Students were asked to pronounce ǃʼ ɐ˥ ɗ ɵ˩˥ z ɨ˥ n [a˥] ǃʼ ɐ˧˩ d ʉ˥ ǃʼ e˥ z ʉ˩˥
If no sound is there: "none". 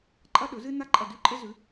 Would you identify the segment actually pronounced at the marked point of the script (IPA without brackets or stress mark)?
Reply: a˥